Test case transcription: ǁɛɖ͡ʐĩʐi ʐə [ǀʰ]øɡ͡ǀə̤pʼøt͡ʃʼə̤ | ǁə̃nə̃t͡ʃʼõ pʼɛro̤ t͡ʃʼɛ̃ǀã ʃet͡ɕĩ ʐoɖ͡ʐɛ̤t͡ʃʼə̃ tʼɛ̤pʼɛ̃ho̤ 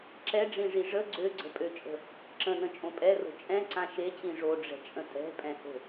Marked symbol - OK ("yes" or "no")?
no